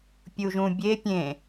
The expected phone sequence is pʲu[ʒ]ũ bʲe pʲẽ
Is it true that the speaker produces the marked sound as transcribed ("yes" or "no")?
yes